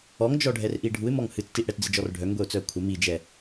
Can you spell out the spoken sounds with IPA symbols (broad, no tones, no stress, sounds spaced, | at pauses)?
ɔ ŋ d͡ʒ ɔ ɖʱ ɛ r ʔ i ɖʱ u ɪ̯ m ɔ ŋ h ɨ t͡s t i ʔ ɽ ɛ t d͡z ɨ d͡ʒ ɔ r ɖʱ œ ŋ ɡʷ ɛ ʊ̯ t͡s œ ə̯ kʷʰ ə m i d͡ʒ ɛ